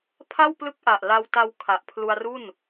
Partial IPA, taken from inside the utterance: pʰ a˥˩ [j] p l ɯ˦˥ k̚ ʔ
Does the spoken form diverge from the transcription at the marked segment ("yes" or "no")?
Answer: yes